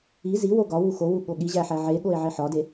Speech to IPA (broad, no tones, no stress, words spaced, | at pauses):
i ziwo ɡɒwu xowu ɠoɠiʑæ ħæʕeɠoe̯ ʕeħɒde